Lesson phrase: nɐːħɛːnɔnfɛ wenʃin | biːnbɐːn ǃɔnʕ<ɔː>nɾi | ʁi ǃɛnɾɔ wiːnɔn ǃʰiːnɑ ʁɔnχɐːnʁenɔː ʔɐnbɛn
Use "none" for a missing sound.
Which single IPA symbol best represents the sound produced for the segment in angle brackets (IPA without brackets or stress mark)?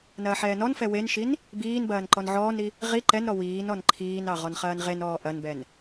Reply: ɔː